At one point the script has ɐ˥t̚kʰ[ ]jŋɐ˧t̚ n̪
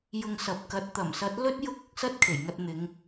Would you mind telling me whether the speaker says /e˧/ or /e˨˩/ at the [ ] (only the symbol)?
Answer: e˨˩